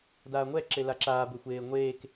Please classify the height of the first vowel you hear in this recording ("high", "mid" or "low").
low